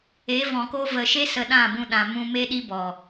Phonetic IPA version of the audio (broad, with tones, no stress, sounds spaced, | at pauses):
e˨˦ v ɔ̃˨ k o˧ v ə˨ ʃ e˦ s ə˧ ɗ ã˦˨ b ũ˧ ɗ ã˨ m ũ˧ m e˦ ɗ i˦ b ɔ˨